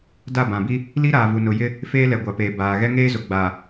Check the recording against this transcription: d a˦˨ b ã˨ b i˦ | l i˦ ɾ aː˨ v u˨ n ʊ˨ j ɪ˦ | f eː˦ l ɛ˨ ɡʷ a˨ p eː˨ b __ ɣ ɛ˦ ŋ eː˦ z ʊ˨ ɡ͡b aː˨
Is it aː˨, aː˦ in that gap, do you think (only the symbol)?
aː˨